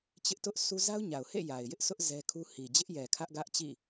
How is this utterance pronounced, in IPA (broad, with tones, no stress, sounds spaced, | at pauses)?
t͡ɕ ɪ˦ ʔ t ʊ˦ ʔ s u˦ z a˦ ʊ̯ ɲ a˨ ʊ̯ h ḛ˦˨ j a˨ ɪ̯ j ɪ˦ ʔ sʰ ʊ˦ ʔ z ɛ˦ kʰ u˦ h i˨ d͡ʑ ɪ˦ ʔ j ɛ˨ kʰ ä˦ ʔ ɡ ä˦ ʔ t͡ɕ ḭ˦˨